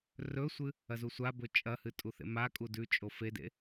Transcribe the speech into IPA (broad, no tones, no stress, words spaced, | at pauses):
rɵsʷɨ | ɐzusʷabɵ t͡ʃʼɐhɨ tʼuθḛmakʼu dʉt͡ʃʼo fedḛ